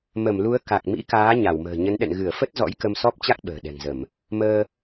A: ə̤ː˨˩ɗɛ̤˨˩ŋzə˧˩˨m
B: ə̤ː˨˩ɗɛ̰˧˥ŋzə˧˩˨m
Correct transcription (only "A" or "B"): A